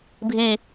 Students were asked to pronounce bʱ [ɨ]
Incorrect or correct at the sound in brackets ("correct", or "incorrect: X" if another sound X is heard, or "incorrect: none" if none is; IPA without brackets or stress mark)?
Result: incorrect: i